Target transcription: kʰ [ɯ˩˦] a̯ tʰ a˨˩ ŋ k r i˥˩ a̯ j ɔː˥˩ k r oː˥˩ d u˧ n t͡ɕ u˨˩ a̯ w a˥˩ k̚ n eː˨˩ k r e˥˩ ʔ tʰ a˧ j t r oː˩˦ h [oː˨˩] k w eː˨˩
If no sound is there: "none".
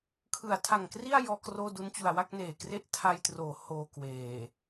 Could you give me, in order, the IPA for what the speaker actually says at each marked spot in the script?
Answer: ɯ˩˦, oː˧

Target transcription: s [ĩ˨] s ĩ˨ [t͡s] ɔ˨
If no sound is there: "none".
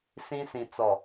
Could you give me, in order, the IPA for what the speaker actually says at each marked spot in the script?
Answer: ĩ˦, t͡s

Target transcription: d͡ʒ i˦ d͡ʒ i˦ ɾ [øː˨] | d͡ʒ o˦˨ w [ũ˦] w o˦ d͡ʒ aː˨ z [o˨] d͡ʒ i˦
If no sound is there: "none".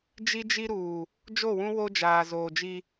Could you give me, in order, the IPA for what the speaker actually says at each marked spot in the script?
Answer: uː˨, ũ˦, oː˨

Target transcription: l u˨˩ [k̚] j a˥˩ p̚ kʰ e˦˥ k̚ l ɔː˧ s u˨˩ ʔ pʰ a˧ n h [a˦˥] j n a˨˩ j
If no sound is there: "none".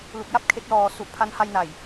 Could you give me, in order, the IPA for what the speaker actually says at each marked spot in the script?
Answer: k̚, a˧

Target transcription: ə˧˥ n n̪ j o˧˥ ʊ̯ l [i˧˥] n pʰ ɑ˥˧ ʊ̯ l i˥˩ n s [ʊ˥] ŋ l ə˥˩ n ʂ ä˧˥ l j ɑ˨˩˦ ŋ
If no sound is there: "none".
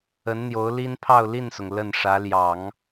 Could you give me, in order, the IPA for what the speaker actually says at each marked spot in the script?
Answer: i˥, ʊ˩

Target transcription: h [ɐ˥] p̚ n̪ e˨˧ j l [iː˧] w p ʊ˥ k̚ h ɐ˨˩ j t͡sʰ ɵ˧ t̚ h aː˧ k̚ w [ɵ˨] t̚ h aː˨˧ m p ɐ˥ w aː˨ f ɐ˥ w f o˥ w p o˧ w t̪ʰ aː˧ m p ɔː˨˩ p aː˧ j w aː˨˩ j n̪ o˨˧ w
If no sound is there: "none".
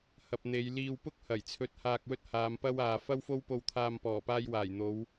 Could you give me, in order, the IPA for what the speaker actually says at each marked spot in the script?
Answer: ɐ˨, iː˧, ɵ˥

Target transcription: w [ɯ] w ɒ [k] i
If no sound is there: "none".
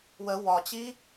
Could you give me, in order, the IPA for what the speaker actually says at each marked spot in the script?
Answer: ə, t͡ɕ

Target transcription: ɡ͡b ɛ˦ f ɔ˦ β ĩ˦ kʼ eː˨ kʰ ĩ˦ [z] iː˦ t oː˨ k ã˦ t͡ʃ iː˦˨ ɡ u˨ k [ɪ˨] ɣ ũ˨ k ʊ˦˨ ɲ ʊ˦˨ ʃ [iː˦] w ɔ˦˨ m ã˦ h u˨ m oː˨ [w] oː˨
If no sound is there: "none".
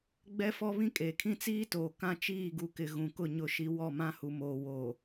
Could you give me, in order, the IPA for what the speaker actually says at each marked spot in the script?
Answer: t͡s, ɪ˨, i˦, w

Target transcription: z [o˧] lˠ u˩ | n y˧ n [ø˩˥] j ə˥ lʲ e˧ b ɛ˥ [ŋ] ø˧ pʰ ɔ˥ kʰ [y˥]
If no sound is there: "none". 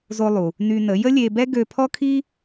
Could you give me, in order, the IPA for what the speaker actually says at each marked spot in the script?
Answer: o˧, ə˩˥, ɡ, i˥

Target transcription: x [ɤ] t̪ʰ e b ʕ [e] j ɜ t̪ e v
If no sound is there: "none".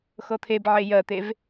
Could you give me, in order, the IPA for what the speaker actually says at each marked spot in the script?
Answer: ɤ, e

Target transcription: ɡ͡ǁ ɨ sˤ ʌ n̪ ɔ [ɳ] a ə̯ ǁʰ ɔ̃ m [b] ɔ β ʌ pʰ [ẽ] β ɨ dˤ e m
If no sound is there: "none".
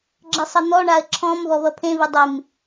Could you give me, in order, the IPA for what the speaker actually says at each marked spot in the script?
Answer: ɳ, β, ẽ

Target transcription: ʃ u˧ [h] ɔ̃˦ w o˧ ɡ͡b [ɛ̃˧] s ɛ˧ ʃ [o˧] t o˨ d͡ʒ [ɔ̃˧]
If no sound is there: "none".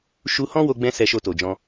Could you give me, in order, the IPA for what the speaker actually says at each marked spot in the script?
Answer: h, ɛ̃˧, o˧, ɔ̃˧

